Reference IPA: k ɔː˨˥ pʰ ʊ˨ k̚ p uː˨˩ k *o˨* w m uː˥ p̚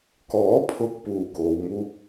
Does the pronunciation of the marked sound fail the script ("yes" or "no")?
yes